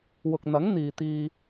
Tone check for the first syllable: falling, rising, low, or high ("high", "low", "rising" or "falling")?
low